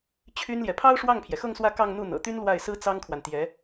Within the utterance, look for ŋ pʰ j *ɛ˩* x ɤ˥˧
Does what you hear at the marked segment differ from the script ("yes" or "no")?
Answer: no